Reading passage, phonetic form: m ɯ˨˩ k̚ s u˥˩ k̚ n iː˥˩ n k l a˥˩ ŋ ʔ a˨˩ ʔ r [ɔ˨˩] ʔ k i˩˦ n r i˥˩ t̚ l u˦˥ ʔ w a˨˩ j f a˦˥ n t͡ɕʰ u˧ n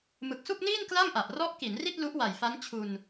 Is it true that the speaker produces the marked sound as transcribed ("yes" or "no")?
no